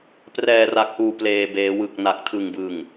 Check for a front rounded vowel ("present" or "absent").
absent